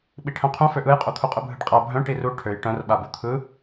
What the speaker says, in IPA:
ɓ i ʈʰ œ̃ qʰ ũ f ø ʔ ɯ j qʼ u t̪ʰ u qʼ ɯ bʱ ɯ ɖ qʼ a bʱ œ̃ ʈ i r u ʈʰ ø j ʈ œ̃ r ɓ a b u t̪ʰ ɯ

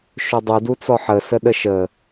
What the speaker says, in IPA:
ʃ ɵ dˤ u d u t͡s ɔ ħ ə s ə ɗ ə ʃ ə

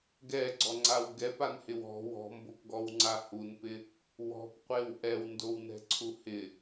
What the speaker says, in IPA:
ɡ ɛ ɡ͡ǀ ɔ ŋ͡ǀ a w ɡ ɛ p a n h ɪ w ɔ̤ w ɔ̤ m b o p ɡ ɔ w ŋ͡ǀ a h u n p ɪ | w ɔ̤ p qʷ e w ʔ ɛ w n d o w n ɛ̤ ǀʰ u h ɪ

